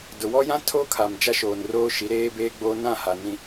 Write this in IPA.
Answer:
d ʊ˨ w ɔ˦ j ã˦ tʰ o˦ kʰ a˨ m d͡ʒ a˦ ʃ oː˨ n r oː˦ ʃ i˨˦ ɾ eː˦ b eː˦ ɡ͡b oː˦ n ã˦˨ h a˨ n ĩ˨

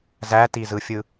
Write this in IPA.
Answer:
z æ t i z ɯ fʲ ɯ

